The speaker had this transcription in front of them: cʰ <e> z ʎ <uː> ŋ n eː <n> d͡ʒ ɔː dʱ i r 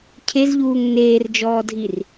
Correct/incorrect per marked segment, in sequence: correct, correct, incorrect: r

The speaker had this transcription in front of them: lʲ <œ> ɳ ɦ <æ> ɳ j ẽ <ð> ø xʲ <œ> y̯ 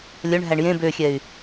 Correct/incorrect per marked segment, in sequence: correct, correct, incorrect: b, incorrect: ɛ

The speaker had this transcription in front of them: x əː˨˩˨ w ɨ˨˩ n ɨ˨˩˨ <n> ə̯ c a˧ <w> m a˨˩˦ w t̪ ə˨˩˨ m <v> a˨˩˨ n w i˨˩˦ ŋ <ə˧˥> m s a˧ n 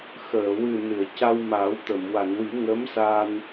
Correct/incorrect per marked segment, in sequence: incorrect: none, correct, incorrect: w, correct

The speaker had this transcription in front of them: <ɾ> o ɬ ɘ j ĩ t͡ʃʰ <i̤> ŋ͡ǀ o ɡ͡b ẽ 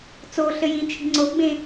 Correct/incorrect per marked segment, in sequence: incorrect: t͡s, correct

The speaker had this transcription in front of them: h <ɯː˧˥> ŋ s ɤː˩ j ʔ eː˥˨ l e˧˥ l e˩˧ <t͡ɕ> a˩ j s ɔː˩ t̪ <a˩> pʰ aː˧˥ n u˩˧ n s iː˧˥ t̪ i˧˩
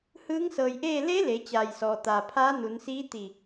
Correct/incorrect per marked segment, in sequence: correct, correct, correct

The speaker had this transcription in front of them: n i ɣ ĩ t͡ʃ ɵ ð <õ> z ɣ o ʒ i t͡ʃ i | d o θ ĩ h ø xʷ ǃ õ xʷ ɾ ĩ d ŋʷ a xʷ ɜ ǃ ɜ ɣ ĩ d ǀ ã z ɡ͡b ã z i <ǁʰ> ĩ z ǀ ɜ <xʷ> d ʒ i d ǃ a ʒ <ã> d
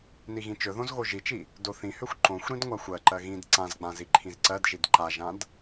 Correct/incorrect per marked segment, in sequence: correct, incorrect: ǃʰ, incorrect: none, correct

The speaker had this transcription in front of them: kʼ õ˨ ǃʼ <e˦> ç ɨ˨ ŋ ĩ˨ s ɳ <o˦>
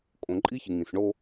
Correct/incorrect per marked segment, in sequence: incorrect: i˦, correct

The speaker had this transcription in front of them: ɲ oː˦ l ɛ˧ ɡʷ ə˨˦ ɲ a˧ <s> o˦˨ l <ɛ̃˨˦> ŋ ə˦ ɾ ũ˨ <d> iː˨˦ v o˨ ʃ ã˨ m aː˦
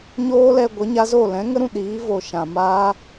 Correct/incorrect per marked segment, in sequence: incorrect: z, correct, incorrect: ɗ

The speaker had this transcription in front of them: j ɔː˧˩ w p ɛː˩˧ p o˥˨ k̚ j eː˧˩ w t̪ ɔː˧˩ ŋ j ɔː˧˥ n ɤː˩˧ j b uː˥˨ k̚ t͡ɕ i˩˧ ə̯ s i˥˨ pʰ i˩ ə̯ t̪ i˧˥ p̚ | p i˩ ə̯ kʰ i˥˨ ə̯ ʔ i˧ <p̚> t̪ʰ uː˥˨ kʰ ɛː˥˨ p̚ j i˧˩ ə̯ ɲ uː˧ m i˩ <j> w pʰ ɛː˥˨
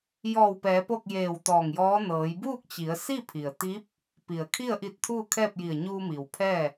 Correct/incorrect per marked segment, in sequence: incorrect: t̚, incorrect: none

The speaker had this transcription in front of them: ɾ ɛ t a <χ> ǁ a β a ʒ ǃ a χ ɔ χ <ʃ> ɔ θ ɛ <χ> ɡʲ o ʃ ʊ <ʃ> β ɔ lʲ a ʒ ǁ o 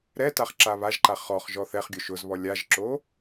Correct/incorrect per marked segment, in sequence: correct, incorrect: ʒ, correct, incorrect: z

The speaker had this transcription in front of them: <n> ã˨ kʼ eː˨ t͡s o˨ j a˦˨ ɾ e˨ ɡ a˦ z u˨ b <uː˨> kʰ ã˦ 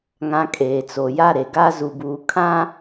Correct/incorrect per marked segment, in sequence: incorrect: ŋ, correct

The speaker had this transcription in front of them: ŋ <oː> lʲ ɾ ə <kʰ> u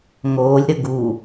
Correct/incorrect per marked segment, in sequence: correct, incorrect: ɡ

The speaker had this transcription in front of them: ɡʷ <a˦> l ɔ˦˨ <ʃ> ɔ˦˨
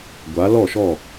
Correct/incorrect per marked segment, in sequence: incorrect: a˨˦, correct

